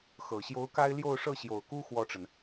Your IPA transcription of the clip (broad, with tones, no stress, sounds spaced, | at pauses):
x ɤ˨˩ ɕ j o˧˥ ʊ̯ k a˥ ɪ̯ l j o˥˧ ʊ̯ ʂ ɤ˥˩ ɕ j o˨˩ ʊ̯ k u˥ x w ɔ˥˩ ʈ͡ʂ ə˩ n